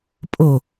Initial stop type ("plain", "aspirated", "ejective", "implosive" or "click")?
ejective